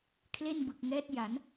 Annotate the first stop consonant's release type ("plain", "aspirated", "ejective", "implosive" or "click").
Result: aspirated